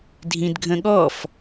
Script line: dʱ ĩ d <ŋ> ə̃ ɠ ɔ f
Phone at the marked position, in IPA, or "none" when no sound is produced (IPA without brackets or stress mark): ɡʱ